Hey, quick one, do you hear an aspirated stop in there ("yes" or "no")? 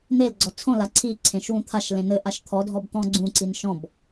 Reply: yes